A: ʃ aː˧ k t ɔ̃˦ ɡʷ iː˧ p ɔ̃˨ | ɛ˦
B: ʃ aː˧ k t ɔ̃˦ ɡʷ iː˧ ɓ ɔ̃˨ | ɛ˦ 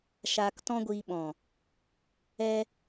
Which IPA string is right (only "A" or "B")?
B